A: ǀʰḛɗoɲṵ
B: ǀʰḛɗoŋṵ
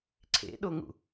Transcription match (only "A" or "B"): B